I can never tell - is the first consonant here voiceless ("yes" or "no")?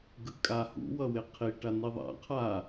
no